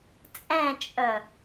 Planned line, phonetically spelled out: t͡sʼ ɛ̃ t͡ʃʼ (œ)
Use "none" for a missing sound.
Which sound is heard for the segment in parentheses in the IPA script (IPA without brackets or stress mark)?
œ